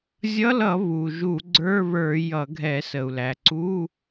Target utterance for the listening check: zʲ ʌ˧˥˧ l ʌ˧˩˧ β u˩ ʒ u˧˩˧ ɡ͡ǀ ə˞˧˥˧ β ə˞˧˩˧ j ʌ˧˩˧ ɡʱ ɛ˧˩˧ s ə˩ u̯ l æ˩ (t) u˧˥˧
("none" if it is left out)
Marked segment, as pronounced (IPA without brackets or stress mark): ǀ